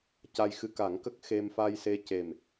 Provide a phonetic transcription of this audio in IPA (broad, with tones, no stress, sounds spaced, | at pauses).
c a˧ j x ɨ˧ k a˨˩˦ ŋ k ə˦˥ k̚ x e˧ m f a˧ j s e˧ c e˨˩ m